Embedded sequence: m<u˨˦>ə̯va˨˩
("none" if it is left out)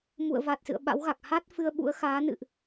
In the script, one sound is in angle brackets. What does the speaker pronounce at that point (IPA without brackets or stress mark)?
ṵ˧˨